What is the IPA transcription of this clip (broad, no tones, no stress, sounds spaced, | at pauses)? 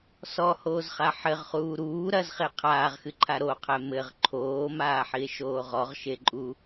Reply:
s ɔ h oː z χ a ħ ɘ ʁ χ uː ɾ uː ɾ ɐ z χ e qʰ aː ʁ x ɨ ǃʰ a ɾ o qʰ ɛ m ɘ ʁ ǃʰ oː m aː ħ i e̯ ʃ oː ʁ ɔ ʁ ʃ e ǃʼ u